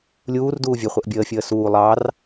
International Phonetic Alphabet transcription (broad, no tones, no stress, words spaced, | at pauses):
lʲuːrduː vʲɘχʷəʔ bʲəːfʲəː suː lˠɑr